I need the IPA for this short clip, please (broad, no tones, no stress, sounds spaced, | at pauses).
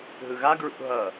ɦ ɯ ɣ a ɡ ɹ ṵ ɦ ʌ